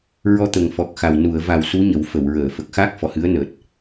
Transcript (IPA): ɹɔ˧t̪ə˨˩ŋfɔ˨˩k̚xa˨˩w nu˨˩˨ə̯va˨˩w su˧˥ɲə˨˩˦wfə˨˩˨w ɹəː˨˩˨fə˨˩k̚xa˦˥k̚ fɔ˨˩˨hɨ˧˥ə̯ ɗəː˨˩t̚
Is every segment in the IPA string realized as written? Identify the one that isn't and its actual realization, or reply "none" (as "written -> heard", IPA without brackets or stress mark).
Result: ɗ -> n